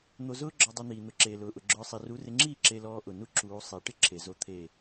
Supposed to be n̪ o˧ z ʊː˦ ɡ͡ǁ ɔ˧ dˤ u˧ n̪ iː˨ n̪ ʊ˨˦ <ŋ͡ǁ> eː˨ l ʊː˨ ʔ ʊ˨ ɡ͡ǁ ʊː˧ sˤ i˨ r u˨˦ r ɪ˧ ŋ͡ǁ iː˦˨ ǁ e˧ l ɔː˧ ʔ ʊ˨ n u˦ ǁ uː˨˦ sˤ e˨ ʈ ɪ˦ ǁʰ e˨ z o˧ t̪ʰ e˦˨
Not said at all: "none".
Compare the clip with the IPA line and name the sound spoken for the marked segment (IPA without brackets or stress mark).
ǁ